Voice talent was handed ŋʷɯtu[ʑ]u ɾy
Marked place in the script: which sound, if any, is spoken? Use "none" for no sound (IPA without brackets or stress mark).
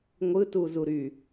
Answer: z